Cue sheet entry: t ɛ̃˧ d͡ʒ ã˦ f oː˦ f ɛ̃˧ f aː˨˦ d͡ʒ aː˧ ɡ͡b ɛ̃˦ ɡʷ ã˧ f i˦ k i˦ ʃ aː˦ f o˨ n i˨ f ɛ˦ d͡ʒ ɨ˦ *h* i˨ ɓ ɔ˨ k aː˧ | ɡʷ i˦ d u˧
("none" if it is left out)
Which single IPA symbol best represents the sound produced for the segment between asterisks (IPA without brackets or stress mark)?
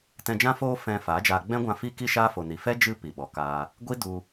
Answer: p